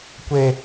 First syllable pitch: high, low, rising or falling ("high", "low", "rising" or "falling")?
high